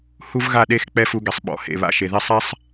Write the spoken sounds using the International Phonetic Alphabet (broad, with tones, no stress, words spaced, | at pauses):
hu˦v ɣa˦˨ɗe˦˨x k͡pɛ˦˨fu˧ɡɛ˨sˤ ɓɔ̰˨ hḛ˨ βa̰˧ʃe˨ðe˦ sˤɛ˦sˤ